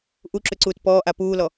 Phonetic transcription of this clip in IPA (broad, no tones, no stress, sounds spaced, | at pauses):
ʔ u ǁ ʏ ǀ uː t p ɔː ʔ a p uː l ɔ